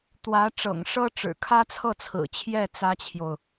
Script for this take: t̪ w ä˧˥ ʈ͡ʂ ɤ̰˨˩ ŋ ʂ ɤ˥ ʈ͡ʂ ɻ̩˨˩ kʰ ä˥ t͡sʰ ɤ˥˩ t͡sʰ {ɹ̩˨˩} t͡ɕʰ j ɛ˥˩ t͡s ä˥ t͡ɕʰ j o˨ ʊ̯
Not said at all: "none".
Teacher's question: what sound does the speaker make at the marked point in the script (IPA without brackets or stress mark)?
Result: ɹ̩˨˩